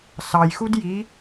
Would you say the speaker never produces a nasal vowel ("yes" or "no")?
yes